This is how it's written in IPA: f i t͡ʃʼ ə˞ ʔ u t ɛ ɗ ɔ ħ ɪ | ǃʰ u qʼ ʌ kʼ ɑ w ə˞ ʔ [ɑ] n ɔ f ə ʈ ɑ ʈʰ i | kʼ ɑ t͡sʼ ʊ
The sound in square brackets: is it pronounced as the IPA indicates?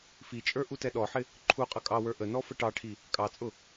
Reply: no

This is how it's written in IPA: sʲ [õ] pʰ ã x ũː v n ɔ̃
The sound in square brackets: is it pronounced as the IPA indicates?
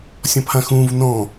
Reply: no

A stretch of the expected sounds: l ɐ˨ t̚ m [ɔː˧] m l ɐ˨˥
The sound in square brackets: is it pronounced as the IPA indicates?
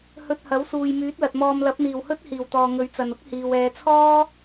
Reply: yes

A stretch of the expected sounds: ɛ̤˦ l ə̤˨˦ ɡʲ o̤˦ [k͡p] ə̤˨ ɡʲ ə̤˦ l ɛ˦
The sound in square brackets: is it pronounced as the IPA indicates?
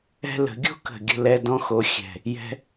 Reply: no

